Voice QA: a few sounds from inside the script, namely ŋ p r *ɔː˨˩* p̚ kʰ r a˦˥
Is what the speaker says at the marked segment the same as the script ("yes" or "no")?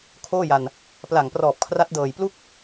yes